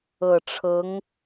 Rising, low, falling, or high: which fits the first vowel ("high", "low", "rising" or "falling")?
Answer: low